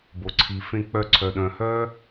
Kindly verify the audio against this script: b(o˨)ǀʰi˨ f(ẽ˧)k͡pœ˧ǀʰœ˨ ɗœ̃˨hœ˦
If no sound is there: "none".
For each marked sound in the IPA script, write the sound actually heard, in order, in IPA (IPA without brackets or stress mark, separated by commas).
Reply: o˨, ẽ˧